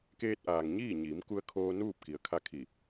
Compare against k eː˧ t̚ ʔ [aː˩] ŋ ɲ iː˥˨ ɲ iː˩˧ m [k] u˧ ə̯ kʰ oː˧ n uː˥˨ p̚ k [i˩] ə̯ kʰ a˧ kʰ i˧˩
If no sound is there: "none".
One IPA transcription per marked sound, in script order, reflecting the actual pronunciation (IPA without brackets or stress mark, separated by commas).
aː˩, k, i˩